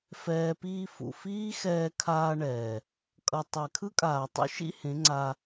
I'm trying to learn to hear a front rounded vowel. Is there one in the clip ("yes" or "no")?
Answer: no